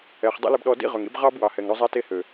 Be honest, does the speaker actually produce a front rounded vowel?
yes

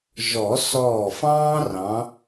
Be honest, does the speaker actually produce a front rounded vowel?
no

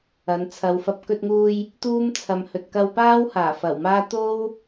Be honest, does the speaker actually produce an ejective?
no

